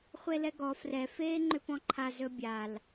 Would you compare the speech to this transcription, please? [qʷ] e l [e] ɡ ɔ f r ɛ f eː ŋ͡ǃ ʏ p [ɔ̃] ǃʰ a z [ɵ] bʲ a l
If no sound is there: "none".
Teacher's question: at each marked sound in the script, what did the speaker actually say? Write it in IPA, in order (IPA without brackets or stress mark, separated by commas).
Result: χʷ, ɛ, ɔ̃, ɵ